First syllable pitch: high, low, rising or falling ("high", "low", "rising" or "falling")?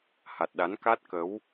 low